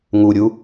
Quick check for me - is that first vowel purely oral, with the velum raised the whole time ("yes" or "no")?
yes